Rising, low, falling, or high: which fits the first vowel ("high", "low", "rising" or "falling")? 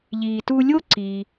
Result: low